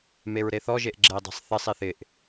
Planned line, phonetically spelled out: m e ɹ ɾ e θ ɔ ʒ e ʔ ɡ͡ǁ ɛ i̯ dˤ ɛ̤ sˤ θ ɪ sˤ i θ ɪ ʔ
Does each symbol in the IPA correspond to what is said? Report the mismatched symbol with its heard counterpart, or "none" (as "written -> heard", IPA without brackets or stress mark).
none